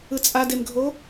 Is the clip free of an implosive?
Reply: yes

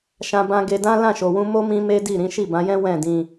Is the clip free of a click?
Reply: yes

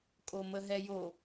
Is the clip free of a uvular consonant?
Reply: yes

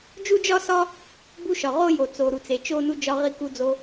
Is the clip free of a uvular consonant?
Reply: no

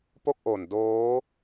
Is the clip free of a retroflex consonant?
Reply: yes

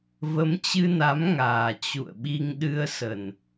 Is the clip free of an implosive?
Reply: no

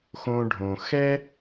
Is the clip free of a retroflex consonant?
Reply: no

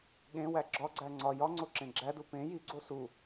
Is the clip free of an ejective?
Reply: yes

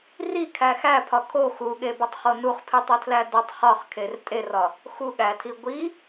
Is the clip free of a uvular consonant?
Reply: no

